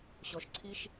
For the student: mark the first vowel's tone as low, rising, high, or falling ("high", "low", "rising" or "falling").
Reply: low